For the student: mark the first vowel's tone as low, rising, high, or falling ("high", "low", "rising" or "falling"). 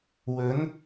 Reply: rising